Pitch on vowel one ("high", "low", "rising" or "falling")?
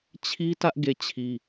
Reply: high